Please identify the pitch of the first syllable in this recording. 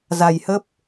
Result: low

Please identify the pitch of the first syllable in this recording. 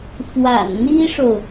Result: low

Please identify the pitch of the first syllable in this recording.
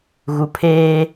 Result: low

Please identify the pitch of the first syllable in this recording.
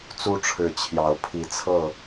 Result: high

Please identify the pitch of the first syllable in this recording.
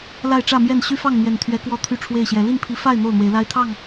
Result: falling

